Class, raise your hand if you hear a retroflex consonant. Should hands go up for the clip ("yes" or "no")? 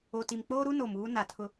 no